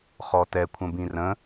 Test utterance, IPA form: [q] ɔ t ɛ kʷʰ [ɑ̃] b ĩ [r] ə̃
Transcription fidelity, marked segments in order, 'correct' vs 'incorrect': incorrect, incorrect, correct

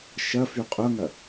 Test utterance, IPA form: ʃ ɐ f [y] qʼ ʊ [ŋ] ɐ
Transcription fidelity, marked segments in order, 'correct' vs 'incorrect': correct, correct

